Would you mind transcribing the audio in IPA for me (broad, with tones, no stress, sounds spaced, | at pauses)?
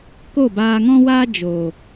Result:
k o˦˨ b aː˧ ŋ ɔ̃˦ w aː˦ d͡ʒ o˨